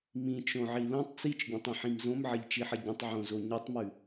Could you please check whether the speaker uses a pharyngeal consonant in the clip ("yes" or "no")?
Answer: yes